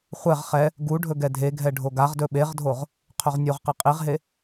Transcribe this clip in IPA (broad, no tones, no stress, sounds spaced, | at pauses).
χʷ ɛ ʁ χ ɛ | ɡ u ɖʱ ɵ ɡ ɛ dʱ e ɡʱ ɛ ɖʱ o ɡ a ʁ d ɵ ɓ e ʁ dʱ o ʁ | qʰ ɵ ʁ nʲ o ʁ q e qʼ i ʁ ɦ e